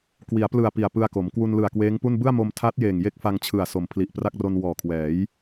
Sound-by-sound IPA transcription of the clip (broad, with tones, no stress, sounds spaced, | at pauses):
k w i˩˦ a̯ p l ɯ˨˩ a̯ p i˨˩ a̯ p ɯ˧ a̯ k o˩˦ m k w u˧ n l ɯ˨˩ a̯ k w eː˦˥ ŋ p u˥˩ n b ɯ˥˩ a̯ m o˧ m tʰ a˦˥ t̚ j eː˨˩ ŋ j e˥˩ k̚ f a˧ ŋ t͡ɕʰ ɯ˨˩ a̯ s o˩˦ m pʰ l i˨˩ ʔ p r a˥˩ k̚ r o˧ n w ɔː˨˩ kʰ w ɛː˩˦ j